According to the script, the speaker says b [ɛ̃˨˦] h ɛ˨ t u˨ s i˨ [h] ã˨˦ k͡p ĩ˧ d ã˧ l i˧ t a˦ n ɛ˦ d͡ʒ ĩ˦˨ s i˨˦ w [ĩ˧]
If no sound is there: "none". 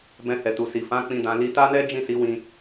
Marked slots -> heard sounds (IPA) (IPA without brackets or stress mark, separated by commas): ɛ̃˧, f, ĩ˧